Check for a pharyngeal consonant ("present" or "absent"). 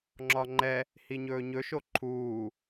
absent